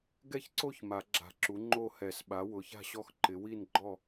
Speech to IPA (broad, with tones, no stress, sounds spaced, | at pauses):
ɡ ɛ˥˨ ç ǀ o˥˨ ç m a˨˩˦ ɡ͡ǁ a̤˨˩˦ ǁ u˩˥ ŋ͡ǃ o˥˨ h ɛ˨˩˦ s ɓ a˩˥ w ʊ˩˥ ç a̤˥˨ ɕ ɔ˥˨ x ǃ ɪ˩˥ w i˥˨ n ɡ͡ǃ ɔ˥˨